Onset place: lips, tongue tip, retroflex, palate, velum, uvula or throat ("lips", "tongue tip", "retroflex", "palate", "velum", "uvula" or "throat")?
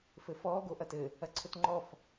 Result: lips